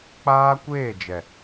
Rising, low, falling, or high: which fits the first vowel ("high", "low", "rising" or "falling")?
high